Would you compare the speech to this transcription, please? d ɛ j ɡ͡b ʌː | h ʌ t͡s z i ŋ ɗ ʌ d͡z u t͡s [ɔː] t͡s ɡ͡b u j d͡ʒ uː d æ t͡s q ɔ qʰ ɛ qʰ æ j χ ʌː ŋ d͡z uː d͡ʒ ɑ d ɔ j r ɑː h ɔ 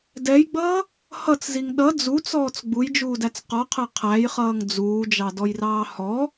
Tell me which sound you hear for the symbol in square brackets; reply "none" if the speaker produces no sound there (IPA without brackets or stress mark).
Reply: ɔː